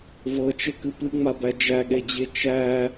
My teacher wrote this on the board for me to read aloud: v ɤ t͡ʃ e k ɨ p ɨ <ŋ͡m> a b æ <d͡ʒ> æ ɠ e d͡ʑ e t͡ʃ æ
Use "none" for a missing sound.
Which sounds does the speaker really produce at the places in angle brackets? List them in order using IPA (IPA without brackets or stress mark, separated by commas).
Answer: ŋ͡m, d͡ʒ